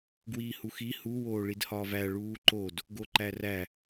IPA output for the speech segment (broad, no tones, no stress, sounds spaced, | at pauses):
ɡ w iː h u x i h u w oː ɭ i d h ɒː v æ ɭ uː ǃ o d | ɡ o ǃ æ r æ